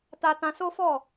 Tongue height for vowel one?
low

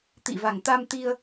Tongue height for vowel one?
high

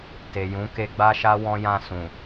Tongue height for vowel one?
mid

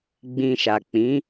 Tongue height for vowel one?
high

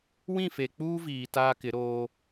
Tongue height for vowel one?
high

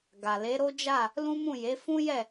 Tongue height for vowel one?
low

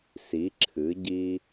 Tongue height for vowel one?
high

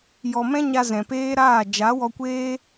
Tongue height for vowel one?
mid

